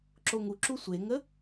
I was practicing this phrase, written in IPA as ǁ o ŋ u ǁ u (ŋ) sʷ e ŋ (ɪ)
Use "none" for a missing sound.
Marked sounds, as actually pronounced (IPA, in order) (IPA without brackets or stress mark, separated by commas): none, ə